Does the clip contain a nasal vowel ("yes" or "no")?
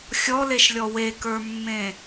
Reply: yes